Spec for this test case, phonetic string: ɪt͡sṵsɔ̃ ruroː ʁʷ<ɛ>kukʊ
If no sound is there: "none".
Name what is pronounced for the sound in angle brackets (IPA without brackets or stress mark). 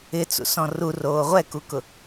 ɛ